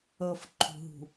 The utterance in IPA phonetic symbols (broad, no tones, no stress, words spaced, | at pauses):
ɤfǃʰṳɦṳ